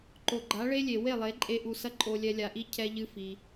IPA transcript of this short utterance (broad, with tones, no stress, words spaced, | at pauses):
ǃo˨ɡ͡ǃa˨˦ɭe˦lʲe˨ we˦˨lˠe˨˦ ǃʼe˧ʔu˨ sɐ˦ǃʼo˧lʲɛ˧ lʲa˧ʔi˦ cʰɛ˦ʎɨ˦fi˧